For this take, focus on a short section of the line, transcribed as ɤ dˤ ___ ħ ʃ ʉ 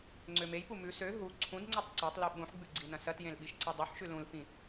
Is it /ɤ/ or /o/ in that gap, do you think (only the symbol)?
o